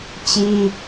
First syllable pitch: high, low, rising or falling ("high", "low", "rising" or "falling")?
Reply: high